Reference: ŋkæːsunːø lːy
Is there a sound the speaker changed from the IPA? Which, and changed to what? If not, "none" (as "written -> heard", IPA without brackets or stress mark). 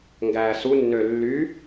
k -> ɡ